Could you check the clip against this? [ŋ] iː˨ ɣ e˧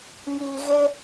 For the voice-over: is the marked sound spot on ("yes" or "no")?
yes